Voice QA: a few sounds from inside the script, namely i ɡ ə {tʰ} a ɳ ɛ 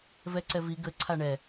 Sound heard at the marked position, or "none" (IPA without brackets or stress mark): ǀʰ